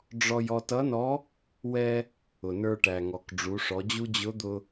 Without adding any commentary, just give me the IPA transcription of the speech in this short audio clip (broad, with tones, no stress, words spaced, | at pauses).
ɖ͡ʐɔ˧j ɔ˧tʌ˧˥nɔ˧˥ | wɛ˧ | ʊ˩nə˞˧ʈæ˩ ŋɔ˩k ɖ͡ʐu˩˧ʂɔ˩˧d͡ʑu˥ d͡ʑʊ˧˥d̪ʊ˧